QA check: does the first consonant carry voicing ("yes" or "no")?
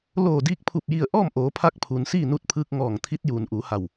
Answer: yes